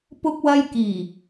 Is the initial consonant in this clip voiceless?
yes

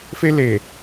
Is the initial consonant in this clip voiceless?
yes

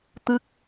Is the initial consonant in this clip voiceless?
yes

